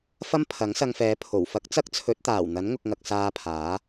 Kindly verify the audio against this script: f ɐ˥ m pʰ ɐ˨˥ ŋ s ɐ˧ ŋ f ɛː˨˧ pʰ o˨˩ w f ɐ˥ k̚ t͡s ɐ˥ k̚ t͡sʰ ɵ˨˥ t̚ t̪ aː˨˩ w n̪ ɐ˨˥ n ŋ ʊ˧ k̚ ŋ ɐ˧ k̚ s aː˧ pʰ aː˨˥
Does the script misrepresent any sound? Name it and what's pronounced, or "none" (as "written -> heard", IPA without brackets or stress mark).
none